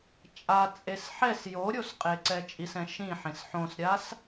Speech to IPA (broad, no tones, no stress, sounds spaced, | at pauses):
t͡ʃʼ a t͡sʼ e s ħ ɛ s j o ɾʲ o s qʼ e ǀ ɛ t͡ʃʼ i s ɛ̃ ʃ ĩ ħ ẽ s ħ õ s ɾʲ a s